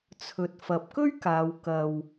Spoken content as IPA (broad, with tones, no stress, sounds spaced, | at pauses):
t͡sʰ ɵ˨ t̚ f ɐ˨˥ p̚ k ɵ˥ ɥ k aː˨˧ w k ɐ˧ w